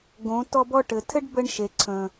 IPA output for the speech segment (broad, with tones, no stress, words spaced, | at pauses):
ɡõ˨˦ tɔ˧bɔ˧ʈɘ˨tʰɘ˦ɖ bə˦ɳʃe˨ ǀʰə̃˨